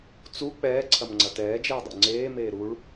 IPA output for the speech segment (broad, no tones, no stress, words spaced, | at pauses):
t͡su k͡pɛːǀʰɐmŋ͡ǀɐ tɛːd͡ʒeːdˤṵ ŋ͡ǀeːmeː ɾuɭ